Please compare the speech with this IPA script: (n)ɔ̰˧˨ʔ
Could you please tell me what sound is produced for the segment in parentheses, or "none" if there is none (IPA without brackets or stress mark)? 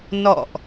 n